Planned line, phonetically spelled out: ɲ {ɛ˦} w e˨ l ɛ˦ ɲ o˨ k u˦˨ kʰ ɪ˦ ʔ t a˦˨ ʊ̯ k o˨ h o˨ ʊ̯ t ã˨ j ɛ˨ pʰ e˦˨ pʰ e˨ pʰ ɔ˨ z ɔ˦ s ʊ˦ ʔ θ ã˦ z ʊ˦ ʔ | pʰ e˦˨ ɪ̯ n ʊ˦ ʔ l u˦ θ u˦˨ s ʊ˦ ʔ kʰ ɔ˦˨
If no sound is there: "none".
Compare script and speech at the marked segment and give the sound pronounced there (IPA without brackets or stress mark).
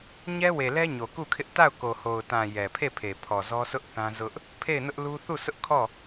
ɛ˦